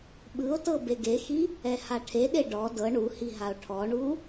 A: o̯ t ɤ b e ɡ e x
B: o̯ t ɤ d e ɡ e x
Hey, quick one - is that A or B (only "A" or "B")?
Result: A